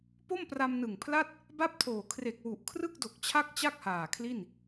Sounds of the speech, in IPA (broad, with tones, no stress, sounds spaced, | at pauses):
p o˥˩ m p r a˧ m n ɯ˨˩ ŋ pʰ l a˥˩ t̚ | b a˥˩ p̚ tʰ oː˨˩ kʰ r e˨˩ k̚ w u˨˩ ʔ kʰ r ɯ˥˩ k̚ d o˨˩ k̚ t͡ɕʰ a˥˩ k̚ t͡ɕ a˥˩ k̚ h aː˨˩ kʰ l i˥˩ n